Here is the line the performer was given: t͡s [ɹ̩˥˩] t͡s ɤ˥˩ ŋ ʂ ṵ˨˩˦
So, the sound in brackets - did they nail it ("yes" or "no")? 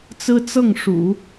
no